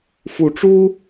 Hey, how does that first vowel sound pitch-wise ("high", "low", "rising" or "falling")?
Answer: rising